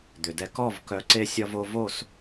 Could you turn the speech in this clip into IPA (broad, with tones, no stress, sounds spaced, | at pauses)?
d̪ ʏ˨ d ɛ˧ k ɔ˦˨ v k œ˧ ǀ e˦ sʲ ɒ˦ v o˦ v o˦˨ s